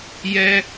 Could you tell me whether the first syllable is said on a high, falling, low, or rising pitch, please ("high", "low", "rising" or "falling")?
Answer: high